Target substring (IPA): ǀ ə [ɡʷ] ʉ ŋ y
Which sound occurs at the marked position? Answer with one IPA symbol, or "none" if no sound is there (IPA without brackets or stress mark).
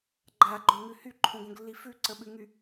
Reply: ɓ